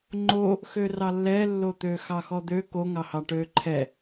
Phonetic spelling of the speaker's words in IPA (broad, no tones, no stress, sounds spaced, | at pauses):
ŋ͡ǃ o | x ø r ɑ lː ɛ lː o t̪ ø x ɑ x ɔ d̪ ø k o ŋ ɑ h ɑ ʈ ø ǃʰ ɛ